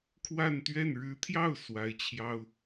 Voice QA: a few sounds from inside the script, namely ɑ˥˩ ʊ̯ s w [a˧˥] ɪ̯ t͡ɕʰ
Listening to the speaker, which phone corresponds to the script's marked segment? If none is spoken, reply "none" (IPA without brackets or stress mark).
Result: a˧˥